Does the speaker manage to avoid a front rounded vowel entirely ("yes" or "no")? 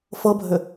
no